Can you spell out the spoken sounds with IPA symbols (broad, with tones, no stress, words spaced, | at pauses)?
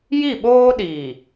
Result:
ji˦˨ɓoː˦ ɗiː˨